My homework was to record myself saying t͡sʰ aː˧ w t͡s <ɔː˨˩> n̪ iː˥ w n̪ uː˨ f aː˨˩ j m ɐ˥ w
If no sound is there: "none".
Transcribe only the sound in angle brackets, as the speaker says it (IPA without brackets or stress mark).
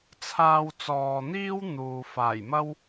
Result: ɔː˨